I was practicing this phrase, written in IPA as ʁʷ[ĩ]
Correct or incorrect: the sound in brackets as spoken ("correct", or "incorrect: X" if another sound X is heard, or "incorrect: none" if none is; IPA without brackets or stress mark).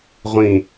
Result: correct